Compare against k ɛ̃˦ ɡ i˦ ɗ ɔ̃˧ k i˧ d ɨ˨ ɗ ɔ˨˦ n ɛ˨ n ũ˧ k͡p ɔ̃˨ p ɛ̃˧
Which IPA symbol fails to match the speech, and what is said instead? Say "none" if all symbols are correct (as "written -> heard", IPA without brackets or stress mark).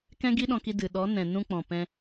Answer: ɛ˨ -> ɛ̃˨